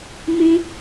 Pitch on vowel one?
high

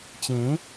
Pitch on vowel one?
rising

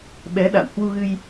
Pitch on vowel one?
rising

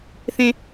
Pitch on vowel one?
high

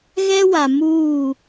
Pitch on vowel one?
high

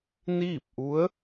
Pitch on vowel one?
falling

